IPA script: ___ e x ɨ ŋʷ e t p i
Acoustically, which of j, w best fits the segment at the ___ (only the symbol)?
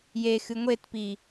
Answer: j